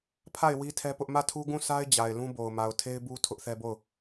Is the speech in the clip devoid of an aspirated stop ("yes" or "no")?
no